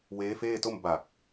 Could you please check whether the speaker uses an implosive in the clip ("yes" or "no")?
no